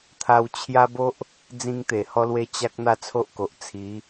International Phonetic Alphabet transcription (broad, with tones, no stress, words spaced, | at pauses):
t̪ʰa˧wt͡ɕʰja˦ bo˦ʔ | d͡zĩ˧ŋt̪e˨˩hɔ˧lwe˧ t͡ɕa˦k̚ n̪a˥˧t͡sʰo˦ʔko˨ʔ t͡sʰi˨˦